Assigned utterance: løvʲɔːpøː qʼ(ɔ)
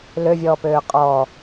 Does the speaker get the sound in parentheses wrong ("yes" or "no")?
yes